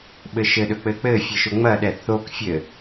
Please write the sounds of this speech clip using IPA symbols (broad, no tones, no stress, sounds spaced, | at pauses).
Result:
ɓ ɘ ʃ ɘ ɗ ɵ k͡p ɘ k͡p ɘ fʲ ɘ ʃ ɵ ŋ͡m ɐ ɗ ɛ θ o k fʲ ɘ